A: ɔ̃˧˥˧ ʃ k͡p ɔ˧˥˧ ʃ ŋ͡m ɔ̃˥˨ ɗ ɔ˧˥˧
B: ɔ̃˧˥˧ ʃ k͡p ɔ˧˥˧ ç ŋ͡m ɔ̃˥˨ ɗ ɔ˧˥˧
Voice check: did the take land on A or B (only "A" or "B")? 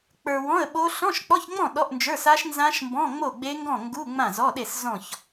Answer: B